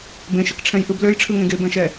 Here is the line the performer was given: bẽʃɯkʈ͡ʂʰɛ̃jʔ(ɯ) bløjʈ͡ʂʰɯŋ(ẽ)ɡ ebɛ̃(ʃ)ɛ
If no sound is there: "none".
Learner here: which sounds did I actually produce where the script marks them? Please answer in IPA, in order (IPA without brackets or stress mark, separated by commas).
ɯ, ẽ, ʃ